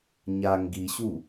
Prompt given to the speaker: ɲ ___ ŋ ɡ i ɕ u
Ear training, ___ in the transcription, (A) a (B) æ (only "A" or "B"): A